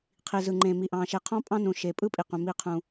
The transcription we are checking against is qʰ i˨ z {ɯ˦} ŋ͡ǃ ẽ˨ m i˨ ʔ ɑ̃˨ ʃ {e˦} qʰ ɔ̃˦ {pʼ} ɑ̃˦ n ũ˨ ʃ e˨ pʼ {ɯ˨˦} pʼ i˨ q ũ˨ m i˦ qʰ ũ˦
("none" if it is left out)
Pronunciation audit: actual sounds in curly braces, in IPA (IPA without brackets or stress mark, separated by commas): ɯ˨, e˨, pʼ, ɯ˦